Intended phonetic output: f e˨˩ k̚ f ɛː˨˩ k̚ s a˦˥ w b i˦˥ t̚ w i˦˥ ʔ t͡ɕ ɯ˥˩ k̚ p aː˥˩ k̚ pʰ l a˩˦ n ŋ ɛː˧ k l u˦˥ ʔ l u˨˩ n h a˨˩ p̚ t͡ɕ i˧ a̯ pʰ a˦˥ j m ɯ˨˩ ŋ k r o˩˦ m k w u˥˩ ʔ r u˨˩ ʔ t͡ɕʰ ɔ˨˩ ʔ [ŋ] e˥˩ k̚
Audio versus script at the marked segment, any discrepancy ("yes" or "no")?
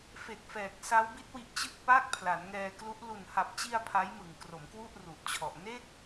yes